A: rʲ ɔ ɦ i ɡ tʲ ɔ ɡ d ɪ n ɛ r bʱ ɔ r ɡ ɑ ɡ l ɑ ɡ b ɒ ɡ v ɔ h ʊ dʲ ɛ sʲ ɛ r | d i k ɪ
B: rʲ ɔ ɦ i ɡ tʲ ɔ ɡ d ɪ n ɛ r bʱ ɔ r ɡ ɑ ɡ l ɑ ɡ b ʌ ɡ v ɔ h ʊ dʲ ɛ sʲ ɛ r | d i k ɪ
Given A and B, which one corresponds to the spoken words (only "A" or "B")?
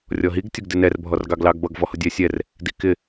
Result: B